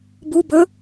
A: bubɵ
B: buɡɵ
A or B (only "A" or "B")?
A